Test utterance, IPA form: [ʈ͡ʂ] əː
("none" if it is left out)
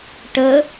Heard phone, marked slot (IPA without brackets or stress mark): ʈ